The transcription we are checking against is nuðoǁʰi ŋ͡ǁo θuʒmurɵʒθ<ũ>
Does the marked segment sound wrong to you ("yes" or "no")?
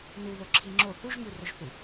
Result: yes